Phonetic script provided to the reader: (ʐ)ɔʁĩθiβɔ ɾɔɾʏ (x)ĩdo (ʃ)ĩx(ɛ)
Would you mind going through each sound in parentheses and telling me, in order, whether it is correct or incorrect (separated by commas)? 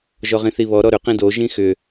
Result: incorrect, incorrect, incorrect, incorrect